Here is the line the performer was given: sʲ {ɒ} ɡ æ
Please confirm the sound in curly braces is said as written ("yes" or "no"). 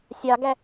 no